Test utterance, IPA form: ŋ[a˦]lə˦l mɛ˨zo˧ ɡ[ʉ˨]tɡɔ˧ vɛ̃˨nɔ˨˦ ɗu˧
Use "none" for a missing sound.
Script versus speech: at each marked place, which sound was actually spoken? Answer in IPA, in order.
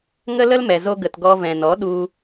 ə˦, ə˨

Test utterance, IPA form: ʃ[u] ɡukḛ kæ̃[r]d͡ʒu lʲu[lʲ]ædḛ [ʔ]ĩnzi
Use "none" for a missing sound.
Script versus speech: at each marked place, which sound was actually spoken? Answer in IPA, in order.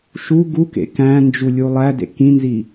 u, n, lˠ, k

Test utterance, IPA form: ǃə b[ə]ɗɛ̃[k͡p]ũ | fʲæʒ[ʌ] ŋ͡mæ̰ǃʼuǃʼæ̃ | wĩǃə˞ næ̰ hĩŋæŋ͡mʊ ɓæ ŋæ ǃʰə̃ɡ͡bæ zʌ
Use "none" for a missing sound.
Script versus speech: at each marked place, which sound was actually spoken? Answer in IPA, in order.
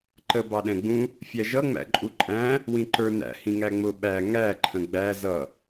ɑ, ɡ͡b, ʌ

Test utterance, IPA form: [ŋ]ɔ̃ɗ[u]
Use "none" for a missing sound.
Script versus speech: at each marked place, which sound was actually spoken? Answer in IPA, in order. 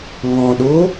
ŋ, o

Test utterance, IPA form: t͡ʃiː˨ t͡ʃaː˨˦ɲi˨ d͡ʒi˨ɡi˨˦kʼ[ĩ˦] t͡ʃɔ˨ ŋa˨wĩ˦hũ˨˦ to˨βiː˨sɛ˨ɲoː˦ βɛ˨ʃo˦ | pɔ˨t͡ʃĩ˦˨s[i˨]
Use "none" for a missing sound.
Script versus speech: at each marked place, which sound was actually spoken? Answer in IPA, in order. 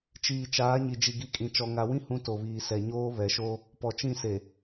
ĩ˨, e˨

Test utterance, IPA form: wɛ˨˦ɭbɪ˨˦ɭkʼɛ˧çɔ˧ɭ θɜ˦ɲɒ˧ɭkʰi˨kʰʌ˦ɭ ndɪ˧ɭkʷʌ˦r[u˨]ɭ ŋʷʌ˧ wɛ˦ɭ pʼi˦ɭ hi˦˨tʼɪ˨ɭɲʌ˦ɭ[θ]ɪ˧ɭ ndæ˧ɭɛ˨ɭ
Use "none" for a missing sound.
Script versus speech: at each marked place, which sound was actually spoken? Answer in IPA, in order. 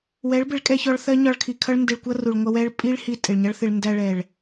u˨, θ

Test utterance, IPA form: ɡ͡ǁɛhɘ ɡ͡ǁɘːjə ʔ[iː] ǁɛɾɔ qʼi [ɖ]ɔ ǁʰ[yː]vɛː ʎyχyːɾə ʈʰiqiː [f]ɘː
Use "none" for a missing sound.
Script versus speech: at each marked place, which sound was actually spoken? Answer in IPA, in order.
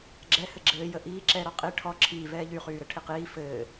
iː, ʈʰ, iː, f

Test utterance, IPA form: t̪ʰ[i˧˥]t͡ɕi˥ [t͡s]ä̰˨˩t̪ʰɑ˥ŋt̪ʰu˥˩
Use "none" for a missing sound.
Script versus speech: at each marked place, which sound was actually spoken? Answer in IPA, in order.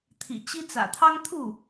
ḭ˨˩, t͡s

